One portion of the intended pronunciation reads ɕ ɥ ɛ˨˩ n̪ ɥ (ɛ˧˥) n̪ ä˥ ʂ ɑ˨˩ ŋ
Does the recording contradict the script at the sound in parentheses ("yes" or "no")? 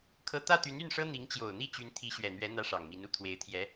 no